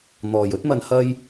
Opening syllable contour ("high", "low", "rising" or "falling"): low